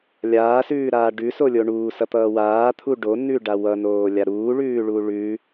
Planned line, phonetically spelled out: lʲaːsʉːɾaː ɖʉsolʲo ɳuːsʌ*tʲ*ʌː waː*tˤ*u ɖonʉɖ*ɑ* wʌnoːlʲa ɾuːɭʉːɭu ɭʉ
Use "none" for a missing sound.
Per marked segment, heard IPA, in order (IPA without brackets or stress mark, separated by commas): t̪, t̪ʰ, a